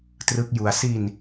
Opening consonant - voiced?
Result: no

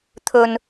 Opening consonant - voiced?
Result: no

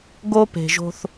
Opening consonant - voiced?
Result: yes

